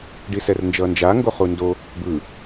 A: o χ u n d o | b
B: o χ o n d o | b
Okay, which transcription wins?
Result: A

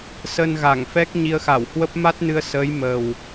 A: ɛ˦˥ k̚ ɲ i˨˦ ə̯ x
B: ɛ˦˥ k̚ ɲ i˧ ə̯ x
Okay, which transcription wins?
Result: B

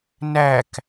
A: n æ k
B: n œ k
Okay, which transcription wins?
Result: A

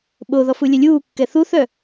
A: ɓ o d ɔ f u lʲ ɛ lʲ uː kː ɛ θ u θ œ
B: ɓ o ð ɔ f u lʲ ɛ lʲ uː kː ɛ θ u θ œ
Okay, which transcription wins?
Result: B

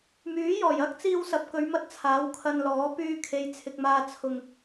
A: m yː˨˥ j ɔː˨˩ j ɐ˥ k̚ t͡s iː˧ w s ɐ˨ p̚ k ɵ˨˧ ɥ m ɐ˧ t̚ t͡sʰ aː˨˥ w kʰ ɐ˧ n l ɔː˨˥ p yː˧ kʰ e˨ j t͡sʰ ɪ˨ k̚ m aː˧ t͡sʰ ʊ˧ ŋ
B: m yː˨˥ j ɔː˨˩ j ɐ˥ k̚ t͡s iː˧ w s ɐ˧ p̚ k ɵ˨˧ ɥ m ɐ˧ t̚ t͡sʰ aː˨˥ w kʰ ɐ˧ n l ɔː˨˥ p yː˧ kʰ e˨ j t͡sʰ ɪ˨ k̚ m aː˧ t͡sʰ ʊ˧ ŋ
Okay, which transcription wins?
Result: A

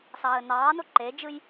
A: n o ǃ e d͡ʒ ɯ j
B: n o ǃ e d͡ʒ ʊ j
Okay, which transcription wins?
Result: A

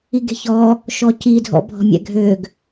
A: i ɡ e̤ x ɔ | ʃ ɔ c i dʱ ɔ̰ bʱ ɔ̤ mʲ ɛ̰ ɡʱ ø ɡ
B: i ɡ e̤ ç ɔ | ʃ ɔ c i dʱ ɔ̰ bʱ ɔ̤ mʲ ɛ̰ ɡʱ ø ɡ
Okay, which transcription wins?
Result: B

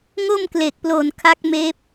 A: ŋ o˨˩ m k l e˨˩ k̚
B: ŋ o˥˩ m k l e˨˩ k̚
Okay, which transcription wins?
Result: B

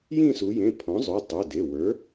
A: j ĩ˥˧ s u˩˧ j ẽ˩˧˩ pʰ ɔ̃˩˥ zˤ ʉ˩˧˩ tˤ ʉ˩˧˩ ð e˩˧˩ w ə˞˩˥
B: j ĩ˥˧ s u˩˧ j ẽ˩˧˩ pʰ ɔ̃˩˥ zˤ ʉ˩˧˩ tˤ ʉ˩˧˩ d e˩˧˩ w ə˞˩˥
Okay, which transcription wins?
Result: B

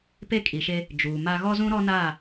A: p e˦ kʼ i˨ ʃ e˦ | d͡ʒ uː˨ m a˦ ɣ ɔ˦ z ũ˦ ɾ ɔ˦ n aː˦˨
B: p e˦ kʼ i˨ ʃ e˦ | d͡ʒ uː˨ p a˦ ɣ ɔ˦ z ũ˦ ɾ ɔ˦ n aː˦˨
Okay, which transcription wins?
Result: A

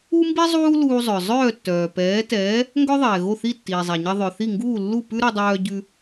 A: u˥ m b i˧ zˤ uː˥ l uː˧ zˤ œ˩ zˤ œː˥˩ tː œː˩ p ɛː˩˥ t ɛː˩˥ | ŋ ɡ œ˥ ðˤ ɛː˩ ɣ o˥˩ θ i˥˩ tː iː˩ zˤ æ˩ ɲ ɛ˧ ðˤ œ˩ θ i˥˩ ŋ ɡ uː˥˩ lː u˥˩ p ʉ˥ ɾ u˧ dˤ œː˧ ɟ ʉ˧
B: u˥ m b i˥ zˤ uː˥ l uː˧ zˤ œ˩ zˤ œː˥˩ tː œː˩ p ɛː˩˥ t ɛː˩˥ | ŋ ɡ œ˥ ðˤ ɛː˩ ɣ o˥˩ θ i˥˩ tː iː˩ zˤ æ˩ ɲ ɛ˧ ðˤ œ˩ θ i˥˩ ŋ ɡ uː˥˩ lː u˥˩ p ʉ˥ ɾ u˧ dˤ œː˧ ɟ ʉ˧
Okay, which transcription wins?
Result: B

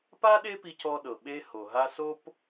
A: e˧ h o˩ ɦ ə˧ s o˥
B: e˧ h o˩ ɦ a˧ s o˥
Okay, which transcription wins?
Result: B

